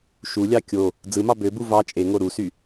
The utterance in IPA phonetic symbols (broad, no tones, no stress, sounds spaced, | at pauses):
ʃ u lʲ ɑ kʲ o | d͡z ɯ m ɑ b ø b u v ɑ t͡ʃʼ e ŋ o ɾ u s y